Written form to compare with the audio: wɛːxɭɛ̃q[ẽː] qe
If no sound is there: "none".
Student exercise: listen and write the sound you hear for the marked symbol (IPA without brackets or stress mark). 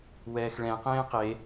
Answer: ẽː